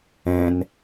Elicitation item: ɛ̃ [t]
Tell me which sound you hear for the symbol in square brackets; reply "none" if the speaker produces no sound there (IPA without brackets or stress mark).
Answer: n